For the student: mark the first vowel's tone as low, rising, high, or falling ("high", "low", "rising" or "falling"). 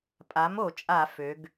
rising